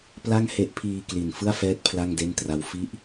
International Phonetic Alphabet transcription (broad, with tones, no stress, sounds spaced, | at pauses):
p l a˥˩ ŋ h e˦˥ ʔ pʰ iː˧ k l i˨˩ n f ɯ˥˩ a̯ f ɛː˦˥ t̚ pʰ l a˥˩ ŋ d e˥˩ n t r a˦˥ w f i˥˩ ʔ